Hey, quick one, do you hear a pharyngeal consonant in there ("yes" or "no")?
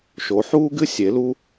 yes